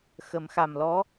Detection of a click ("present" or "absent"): absent